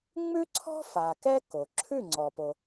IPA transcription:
ŋ͡mʉ˥ǀʰɔ̤˥ fa˩ kɛ˥ko˩ ǁʰʉ˥˩ŋ͡ǀɔ˩po˩

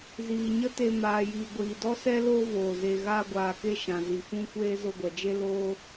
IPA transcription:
ziː˨ɲə˦te˧ maː˨ jiː˨ɡʷiː˨dɔ˦sɛ˦ loː˦voː˨ ze˨ɣaː˧ɡʷaː˨ke˧ ʃã˨ zi˨fũ˦kʷeː˦ zo˧ɡʷɛ˨d͡ʒe˦ loː˦

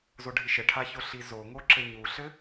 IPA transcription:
zoɖʱiʃɘʈʰa çoɬizoŋo ǁɘɲuɬɘ

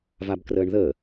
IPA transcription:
vabkrəːɳðə

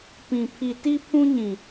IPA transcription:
pĩ˨ pʰi˨ ti˦pʰũ˦ɲĩ˨

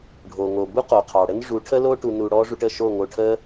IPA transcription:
ɖʱo˨ŋo˨bu˦qo˨ qʰɑ˨ɽə˦n ʐu˨˦ʈʰə˦lo˦ ʈu˧nu˧ ɽɔ˦ ʐu˧ʈə˦˨ʃo˦˨ŋo˧ ʈʰə˦

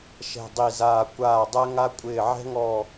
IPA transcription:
ʃɛ̤˨˩dˤi˨˩zaː˨˩ kʷaː˨˩dˤɛ˧ŋa˧kʷʼɪː˨˩ ʕɛ̤˧ŋɔ˨˩

